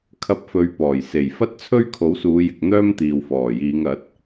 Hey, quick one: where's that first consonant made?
velum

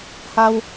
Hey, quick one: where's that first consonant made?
throat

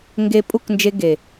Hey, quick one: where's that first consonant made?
velum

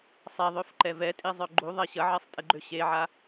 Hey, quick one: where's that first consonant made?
tongue tip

